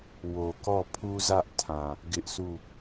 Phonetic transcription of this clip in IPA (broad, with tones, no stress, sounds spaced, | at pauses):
w o˨ k ɔ˦˨ pʰ u˦ z ä˦ ʔ tʰ ã˨ | ɡ ɪ˦ ʔ sʰ u˦˨